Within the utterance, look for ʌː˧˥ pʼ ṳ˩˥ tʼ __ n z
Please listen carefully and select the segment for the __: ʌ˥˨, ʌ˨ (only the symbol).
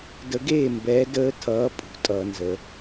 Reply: ʌ˨